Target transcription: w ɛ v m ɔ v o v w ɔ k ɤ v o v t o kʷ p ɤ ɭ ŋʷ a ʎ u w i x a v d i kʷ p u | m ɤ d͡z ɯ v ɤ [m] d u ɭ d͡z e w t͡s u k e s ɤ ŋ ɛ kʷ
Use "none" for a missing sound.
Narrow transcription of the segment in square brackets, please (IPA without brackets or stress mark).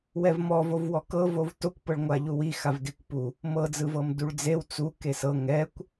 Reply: m